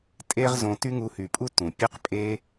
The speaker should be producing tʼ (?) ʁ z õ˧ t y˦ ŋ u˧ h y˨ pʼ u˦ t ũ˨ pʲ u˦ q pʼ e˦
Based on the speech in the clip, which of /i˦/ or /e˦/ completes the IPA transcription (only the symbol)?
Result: e˦